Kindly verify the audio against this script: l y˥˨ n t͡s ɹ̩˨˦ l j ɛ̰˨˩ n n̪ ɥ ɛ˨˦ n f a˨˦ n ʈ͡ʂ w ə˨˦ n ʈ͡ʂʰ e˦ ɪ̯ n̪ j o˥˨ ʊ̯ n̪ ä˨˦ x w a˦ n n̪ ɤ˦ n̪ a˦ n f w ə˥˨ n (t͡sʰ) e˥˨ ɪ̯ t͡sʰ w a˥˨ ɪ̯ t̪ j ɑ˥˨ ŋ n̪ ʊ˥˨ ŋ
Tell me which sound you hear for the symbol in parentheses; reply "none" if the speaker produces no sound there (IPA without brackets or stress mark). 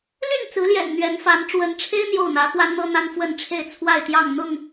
ʈ͡ʂʰ